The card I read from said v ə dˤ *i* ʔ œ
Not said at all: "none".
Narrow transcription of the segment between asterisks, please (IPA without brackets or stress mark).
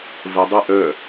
i